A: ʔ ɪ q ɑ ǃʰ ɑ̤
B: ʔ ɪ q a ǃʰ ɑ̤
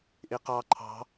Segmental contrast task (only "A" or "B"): A